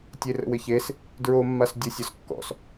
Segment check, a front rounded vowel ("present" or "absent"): absent